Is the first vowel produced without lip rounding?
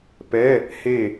yes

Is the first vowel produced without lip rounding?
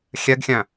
yes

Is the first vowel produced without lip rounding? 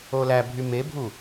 no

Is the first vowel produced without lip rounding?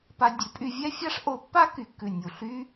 yes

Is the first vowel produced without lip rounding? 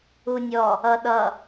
no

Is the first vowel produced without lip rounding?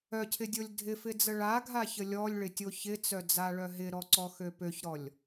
no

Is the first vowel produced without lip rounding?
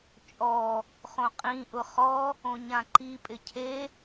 no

